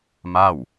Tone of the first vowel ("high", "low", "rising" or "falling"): falling